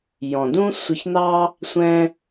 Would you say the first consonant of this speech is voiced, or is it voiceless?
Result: voiced